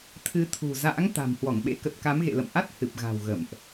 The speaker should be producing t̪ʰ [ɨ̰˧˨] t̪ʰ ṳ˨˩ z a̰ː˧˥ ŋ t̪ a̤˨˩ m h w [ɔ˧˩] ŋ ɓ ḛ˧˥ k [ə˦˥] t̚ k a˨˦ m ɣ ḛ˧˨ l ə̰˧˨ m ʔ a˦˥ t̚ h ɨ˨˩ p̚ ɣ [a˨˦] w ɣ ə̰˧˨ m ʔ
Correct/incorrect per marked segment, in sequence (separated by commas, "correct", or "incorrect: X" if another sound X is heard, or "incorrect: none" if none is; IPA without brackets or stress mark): incorrect: ɨ˨˦, correct, incorrect: ə˨˩, incorrect: a̤˨˩